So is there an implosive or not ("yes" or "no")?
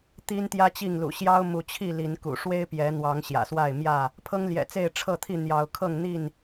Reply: no